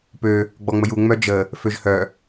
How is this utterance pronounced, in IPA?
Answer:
pø | ɡ͡bɔŋ͡məju ŋ͡mœd͡ʒə | føʒhœ

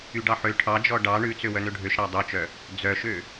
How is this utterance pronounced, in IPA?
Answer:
yɖɑħø ʈʰɑd͡ʒɔ ɖɑ ɳʉt͡sø wœnøɖʱøʃ ɾɑdˤœt͡ʃœ | d͡zœʃø

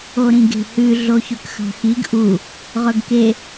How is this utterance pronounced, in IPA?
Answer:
oɾĩɡe̤hʉ ɮoçɵkxɑ̤xiɡ ʔu | ʁɵɡke

